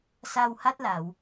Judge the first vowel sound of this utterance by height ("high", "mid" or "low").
low